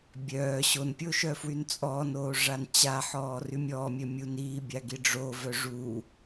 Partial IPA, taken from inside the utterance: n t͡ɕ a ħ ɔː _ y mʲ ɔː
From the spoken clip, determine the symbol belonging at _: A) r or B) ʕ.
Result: A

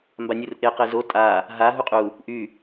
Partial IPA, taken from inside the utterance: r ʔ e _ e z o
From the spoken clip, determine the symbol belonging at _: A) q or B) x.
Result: A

